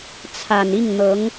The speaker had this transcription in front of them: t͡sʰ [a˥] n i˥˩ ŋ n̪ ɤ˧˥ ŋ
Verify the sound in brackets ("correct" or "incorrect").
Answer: incorrect